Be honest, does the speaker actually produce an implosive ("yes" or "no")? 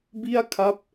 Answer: no